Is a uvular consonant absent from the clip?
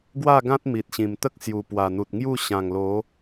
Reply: yes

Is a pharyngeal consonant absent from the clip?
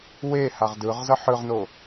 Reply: no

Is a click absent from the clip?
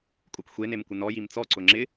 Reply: no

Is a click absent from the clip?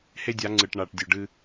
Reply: no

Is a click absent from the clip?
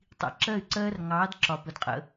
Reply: no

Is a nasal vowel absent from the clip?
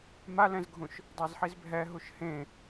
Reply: no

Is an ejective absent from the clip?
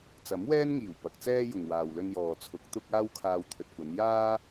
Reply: yes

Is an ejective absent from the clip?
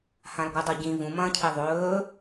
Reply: yes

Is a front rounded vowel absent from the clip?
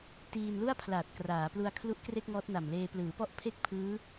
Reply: yes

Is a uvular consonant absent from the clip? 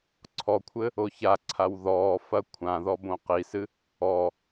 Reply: no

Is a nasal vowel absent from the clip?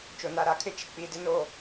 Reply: yes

